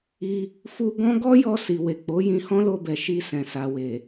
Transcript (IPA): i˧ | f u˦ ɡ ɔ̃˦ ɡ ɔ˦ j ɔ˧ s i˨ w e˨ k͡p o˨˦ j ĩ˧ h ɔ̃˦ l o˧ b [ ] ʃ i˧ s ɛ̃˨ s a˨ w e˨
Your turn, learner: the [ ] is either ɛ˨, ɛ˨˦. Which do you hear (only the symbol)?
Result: ɛ˨